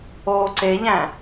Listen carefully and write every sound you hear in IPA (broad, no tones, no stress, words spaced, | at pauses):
oːǀeʎæ̃